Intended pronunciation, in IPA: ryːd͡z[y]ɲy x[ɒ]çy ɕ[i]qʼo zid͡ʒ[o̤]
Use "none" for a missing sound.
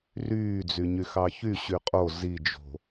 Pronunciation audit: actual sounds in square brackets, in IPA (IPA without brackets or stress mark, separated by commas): y, ɑ, y, o̤